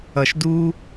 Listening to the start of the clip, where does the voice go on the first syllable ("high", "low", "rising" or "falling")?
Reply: low